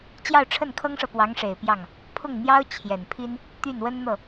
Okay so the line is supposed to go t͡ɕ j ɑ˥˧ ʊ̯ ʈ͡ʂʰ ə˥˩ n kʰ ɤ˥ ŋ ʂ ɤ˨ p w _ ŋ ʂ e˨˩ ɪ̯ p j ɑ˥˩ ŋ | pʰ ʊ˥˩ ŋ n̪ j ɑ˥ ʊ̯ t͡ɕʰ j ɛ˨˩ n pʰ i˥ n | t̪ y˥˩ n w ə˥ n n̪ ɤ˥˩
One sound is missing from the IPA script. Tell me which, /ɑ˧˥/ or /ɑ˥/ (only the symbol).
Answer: ɑ˧˥